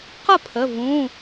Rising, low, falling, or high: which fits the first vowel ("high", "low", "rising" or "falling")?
falling